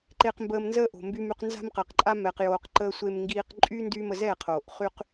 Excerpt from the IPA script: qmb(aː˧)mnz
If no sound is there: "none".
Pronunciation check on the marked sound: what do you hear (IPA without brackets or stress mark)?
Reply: əː˧